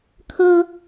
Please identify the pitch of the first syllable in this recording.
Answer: high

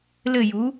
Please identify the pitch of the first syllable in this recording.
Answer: falling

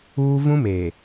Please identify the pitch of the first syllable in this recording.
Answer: high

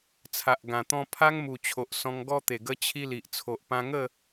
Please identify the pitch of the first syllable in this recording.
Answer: low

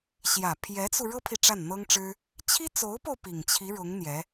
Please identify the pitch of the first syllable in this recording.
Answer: low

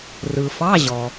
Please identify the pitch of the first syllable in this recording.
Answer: low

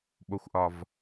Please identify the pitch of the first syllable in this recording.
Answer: low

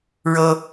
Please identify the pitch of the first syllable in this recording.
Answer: high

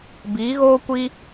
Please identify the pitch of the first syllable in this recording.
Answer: rising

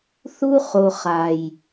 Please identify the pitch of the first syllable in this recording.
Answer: high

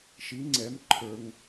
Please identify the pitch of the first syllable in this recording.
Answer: rising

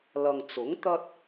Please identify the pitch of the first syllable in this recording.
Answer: low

